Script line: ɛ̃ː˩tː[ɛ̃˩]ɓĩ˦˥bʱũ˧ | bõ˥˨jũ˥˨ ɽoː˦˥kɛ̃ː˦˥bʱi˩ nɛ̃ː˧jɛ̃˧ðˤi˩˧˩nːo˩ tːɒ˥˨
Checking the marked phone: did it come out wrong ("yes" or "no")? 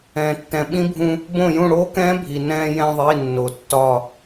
no